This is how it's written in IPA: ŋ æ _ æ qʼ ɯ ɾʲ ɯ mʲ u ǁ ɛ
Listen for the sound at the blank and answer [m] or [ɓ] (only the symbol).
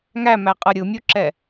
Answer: m